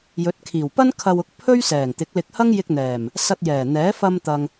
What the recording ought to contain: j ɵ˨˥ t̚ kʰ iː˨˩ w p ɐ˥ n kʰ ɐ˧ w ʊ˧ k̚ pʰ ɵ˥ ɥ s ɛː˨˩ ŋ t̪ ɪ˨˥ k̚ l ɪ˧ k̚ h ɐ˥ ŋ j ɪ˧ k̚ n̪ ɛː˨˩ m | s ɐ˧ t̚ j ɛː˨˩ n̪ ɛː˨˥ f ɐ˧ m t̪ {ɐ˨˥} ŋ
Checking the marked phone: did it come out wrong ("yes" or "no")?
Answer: yes